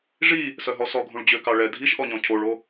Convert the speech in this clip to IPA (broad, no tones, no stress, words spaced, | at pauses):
ʐi | sœɦɔsɔɡʱũɭ d͡ʑøkɑɭɛ dʱiʃʔɔɲɔ̃ cʰoɭo